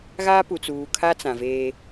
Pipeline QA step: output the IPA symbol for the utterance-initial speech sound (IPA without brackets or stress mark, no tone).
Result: ɣ